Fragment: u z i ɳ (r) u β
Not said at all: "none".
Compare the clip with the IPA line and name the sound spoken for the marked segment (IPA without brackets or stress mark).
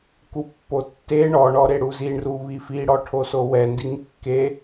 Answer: r